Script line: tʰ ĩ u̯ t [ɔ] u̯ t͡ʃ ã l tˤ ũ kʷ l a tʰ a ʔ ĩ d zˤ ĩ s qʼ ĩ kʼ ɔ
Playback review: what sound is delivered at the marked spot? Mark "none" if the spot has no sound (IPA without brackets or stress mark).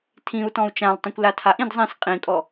ɔ̃